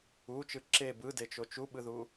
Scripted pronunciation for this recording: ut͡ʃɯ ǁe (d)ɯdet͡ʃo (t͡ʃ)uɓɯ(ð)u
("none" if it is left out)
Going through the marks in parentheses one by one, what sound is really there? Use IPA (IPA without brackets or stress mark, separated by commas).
b, t͡ʃ, ð